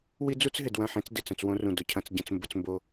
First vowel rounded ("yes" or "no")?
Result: no